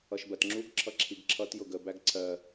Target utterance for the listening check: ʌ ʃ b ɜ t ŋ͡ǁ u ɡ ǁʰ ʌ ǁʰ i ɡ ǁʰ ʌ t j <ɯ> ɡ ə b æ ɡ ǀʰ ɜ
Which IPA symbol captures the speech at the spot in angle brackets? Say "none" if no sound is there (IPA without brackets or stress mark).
ʊ